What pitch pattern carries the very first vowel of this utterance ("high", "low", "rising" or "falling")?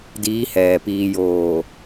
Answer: rising